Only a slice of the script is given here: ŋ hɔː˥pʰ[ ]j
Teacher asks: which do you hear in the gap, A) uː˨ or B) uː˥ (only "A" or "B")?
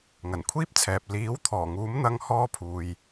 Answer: A